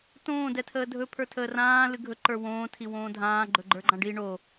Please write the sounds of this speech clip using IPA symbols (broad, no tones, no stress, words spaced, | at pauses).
tõː dɛtʰəːdʱɵ pʰə˞tʰəːrãː lɨɡʱɵ ǃə˞wõː tʰiwõːdʱãː ɡ͡ǃɵɡ͡ǃə˞ɡ͡ǃãɖi ɳo